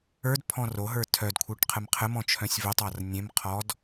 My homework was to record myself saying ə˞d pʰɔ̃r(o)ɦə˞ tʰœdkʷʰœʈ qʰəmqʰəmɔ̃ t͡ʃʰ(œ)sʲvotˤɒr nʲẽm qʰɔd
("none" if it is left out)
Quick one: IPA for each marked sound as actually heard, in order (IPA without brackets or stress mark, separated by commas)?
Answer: o, œ̃